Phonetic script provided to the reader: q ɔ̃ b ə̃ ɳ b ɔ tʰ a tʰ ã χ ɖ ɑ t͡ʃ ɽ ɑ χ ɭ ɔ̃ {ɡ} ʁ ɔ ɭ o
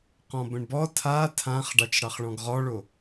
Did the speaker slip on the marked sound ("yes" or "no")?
no